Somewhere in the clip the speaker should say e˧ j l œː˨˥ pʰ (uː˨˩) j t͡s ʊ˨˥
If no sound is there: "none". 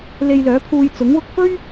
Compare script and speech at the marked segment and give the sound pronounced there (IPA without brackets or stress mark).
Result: uː˧